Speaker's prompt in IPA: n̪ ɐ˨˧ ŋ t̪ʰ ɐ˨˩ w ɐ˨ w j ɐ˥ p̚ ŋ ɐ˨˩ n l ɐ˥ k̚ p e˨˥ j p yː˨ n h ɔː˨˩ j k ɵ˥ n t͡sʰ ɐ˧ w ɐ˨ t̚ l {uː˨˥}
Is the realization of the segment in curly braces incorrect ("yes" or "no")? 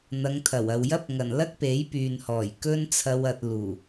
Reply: yes